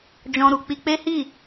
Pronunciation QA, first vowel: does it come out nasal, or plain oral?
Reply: nasal